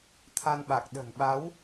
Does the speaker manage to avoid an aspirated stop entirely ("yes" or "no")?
no